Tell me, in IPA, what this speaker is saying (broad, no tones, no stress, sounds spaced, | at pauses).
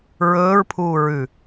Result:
ɹ ɵː ɹ pʰ uː ɹ ʉ